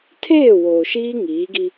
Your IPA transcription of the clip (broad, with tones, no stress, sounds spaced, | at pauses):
tʰ eː˦˨ w oː˨ ʃ iː˦ ŋ iː˨˦ ɡ i˦